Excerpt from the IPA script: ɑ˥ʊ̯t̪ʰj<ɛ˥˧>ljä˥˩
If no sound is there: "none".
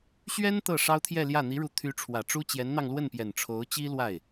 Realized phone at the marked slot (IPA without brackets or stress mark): ɛ˥˧